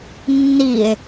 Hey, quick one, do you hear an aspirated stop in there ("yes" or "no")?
no